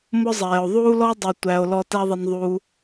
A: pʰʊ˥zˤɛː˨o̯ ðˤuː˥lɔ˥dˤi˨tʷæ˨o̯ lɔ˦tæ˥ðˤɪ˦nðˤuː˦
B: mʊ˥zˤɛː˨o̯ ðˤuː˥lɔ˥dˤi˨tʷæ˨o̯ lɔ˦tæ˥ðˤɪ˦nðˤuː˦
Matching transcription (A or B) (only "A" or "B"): B